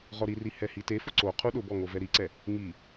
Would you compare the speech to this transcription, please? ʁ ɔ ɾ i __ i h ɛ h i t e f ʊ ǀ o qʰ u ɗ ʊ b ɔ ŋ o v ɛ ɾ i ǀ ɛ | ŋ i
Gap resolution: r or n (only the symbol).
r